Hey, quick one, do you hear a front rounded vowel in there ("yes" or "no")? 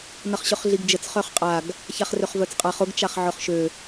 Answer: yes